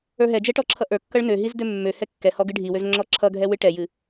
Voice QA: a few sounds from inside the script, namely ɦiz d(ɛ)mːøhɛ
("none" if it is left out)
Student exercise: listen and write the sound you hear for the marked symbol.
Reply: ø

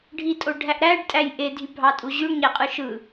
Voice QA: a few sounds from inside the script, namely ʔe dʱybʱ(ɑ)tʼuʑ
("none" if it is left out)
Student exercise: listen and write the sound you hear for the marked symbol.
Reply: ɑ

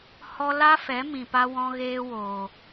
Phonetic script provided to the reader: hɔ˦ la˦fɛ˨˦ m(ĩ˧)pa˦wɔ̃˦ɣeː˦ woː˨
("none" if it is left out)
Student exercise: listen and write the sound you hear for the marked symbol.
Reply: ĩ˨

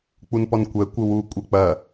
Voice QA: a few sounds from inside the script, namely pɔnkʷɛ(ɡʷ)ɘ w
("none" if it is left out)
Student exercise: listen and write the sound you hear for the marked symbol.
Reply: kʷ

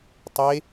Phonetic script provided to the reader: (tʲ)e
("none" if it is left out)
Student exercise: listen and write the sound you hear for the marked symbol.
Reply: tˤ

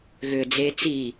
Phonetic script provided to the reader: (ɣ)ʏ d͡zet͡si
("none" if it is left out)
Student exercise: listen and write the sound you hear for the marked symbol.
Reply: ɣ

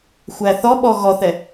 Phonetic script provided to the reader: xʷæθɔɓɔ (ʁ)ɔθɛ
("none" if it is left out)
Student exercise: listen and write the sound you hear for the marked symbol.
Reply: ɣ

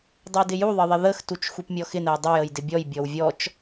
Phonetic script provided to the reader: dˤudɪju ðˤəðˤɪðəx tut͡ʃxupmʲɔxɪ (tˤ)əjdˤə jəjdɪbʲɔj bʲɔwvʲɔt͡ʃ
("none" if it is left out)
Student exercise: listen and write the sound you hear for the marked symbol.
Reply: n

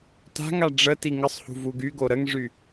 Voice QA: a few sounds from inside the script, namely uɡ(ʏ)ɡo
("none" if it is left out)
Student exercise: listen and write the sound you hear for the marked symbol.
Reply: y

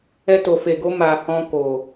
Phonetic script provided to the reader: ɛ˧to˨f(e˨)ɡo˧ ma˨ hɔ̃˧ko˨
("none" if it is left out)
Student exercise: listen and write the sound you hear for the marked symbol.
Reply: e˨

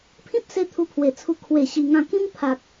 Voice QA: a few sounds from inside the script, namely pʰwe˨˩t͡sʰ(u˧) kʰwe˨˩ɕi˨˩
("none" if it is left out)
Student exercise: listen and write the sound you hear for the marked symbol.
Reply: u˧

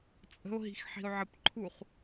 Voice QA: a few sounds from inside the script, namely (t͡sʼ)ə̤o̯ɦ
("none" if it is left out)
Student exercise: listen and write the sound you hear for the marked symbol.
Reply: t͡sʼ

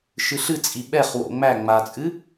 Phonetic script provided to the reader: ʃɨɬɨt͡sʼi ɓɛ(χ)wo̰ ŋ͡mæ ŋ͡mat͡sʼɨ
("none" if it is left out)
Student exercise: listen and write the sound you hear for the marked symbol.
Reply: χ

